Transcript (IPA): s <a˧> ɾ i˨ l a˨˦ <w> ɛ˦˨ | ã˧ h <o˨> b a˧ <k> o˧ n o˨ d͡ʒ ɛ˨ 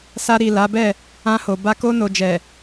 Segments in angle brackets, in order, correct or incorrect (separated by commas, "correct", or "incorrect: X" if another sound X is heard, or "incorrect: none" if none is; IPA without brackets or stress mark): correct, incorrect: b, correct, correct